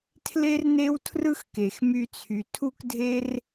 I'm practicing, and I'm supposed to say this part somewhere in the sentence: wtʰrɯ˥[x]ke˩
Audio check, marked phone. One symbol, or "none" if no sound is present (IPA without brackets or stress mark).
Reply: x